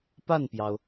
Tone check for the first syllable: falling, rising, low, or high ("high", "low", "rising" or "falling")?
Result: falling